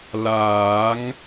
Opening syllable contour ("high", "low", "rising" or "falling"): rising